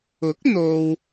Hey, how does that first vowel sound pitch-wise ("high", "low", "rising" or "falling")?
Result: rising